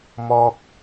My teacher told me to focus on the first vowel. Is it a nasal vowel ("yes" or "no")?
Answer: no